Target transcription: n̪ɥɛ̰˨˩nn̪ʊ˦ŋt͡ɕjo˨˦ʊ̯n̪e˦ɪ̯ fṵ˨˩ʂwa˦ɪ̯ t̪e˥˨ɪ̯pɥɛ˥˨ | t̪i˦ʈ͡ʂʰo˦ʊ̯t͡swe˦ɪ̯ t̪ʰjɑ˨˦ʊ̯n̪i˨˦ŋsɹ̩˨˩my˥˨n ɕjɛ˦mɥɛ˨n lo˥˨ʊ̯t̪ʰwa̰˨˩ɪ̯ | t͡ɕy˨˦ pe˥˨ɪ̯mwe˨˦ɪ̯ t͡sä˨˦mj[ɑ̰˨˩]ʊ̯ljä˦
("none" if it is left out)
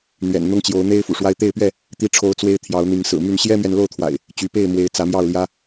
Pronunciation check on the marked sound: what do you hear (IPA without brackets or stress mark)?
ɑ˥˨